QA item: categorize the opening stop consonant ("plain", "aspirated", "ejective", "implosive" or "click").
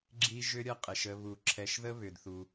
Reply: click